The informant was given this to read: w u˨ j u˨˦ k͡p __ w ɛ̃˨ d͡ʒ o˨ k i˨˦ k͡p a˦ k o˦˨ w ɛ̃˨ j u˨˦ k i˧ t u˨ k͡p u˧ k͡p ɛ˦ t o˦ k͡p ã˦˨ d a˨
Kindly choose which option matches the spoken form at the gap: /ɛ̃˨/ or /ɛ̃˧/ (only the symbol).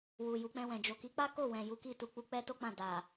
ɛ̃˧